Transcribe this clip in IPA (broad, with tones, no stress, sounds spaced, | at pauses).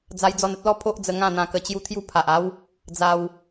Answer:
d͡z a˧ j d͡z ɔ˧ n ə˦ t̚ l ɔ˦ pʰ o˦ ʔ d͡z ə˧ ŋ ã˥˧ n̪ ã˧ k ə˧ t͡ɕ j u˦ t̪ʰ j u˥˧ pʰ a˨ ʔ a˦ w | d͡z a˧ w